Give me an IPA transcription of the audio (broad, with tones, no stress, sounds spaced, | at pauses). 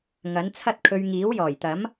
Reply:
ŋ ɐ˨˥ n t͡sʰ ɐ˥ t̚ kʰ ɵ˧ ɥ ŋ iː˨˥ w j ɔː˨˩ j t̪ ɐ˨˥ m